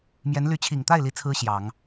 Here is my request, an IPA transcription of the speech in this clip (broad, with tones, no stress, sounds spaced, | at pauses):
m j ɛ˧˥ n l y˧˥ t͡ɕʰ i˨˩ ŋ t̪ a˥˩ ɪ̯ l i˥ t͡sʰ ɹ̩˥ ɕ j ɑ˨˩˦ ŋ